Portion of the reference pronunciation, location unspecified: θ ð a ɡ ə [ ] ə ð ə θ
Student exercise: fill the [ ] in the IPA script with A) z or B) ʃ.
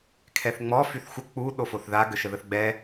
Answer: B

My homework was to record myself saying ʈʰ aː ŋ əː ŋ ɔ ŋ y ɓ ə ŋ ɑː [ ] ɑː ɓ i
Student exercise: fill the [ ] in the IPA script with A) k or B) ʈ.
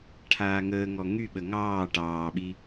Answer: B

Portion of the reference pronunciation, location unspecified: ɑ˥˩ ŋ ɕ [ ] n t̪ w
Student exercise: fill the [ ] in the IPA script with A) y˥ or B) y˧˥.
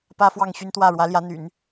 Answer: A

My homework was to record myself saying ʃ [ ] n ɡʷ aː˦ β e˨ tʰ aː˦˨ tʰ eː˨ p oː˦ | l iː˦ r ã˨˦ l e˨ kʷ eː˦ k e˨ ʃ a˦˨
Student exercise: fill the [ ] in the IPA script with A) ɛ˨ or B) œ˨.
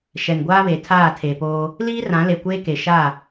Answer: A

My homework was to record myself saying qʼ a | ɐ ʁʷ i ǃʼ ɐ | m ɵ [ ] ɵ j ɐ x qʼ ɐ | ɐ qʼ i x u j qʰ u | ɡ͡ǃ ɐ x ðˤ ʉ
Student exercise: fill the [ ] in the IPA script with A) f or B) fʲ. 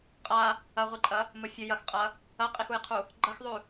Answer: B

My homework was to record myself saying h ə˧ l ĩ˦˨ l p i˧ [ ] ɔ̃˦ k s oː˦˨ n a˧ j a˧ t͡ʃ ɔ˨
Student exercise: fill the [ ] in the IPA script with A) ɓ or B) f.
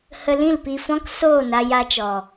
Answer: B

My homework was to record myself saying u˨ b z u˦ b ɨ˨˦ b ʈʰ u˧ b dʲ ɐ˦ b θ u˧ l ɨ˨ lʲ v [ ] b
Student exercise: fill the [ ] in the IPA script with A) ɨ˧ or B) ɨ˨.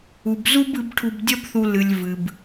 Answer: B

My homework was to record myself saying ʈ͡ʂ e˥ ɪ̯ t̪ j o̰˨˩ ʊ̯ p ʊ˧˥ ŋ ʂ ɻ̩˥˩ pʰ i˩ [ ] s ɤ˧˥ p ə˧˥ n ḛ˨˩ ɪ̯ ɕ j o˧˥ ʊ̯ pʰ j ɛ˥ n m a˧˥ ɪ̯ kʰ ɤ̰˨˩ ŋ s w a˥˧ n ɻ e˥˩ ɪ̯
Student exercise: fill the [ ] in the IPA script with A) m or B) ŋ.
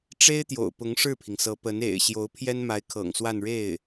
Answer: B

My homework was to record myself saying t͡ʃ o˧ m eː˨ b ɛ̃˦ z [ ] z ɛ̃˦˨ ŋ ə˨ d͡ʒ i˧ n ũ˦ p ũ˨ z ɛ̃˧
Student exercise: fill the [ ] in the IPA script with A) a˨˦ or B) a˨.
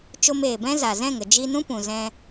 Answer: B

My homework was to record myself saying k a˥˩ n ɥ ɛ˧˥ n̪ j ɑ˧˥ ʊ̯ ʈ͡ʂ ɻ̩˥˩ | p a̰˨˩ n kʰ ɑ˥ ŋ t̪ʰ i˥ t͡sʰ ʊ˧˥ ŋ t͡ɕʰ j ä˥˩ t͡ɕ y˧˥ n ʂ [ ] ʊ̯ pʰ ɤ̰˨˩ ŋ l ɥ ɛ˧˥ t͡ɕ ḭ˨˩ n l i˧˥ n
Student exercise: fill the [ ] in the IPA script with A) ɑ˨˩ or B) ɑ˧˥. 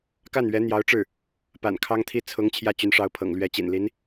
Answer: B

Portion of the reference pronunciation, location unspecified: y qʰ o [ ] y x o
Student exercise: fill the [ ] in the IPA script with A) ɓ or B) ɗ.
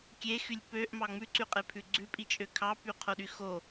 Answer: B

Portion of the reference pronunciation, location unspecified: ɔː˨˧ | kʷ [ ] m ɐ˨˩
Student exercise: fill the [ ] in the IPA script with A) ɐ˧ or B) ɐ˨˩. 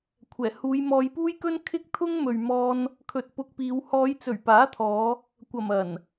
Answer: B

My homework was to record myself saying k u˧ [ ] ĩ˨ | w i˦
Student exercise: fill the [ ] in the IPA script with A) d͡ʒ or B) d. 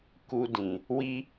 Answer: B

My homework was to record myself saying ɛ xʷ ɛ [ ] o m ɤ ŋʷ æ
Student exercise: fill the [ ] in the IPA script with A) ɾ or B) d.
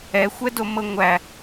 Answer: B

